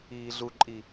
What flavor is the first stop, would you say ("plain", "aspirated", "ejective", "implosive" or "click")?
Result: click